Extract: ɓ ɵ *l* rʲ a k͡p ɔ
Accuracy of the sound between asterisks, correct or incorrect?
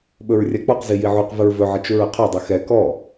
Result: incorrect